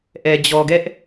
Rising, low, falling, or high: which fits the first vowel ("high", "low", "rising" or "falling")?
low